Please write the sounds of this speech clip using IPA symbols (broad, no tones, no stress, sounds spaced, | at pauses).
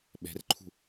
ɓ ɛ̤ r ǃʰ ṳ